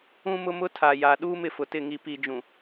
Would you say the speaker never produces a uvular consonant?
yes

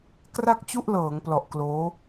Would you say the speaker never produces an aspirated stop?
yes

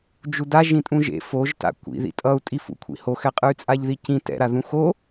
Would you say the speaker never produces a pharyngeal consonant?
yes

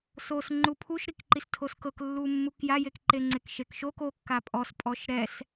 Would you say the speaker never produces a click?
no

